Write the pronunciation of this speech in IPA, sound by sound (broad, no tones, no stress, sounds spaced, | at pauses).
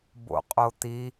b o̰ qʼ o t̪ i